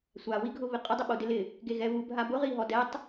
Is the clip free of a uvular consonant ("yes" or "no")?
no